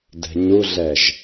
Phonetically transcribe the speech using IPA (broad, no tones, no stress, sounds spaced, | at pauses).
d ɛ̤ ɲ u ɮ ɛ ʒ